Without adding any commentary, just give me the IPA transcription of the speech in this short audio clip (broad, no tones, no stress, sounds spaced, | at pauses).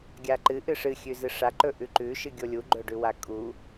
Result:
ɡʲ a ǃ ɨ ʔ ɨ ʂ ɨ xʲ ʉ z ɨ ʂ a ǃ ɵ ʔ ʉ ǃ ʉ ʃ ɨ ɡʲ o lʲ u ɡ͡ǃ ɵ ɖ ʉ w a kʼ u